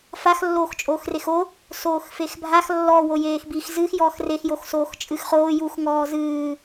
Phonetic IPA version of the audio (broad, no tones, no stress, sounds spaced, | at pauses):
f a x lː oː x t͡ʃʼ oː x r e x o | s oː x f e x bʱ a x lː ɔ w o j eː x b i x z ɨ x j ɔː x r e x j o x s oː x t͡ʃʼ ɨ x χ oː j u x ŋ ɔː z ɨː